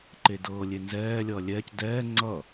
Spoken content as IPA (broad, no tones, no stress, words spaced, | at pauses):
ǃedɤːlʲe nzɛːlʲʌː lʲɛːc dɛː ŋ͡ǀʌ